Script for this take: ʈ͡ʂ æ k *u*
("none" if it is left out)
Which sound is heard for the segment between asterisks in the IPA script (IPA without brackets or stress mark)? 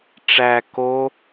o